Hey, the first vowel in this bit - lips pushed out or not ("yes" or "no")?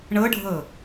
no